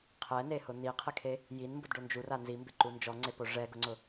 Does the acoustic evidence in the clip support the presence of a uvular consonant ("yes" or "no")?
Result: yes